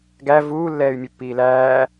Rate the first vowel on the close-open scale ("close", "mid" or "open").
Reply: open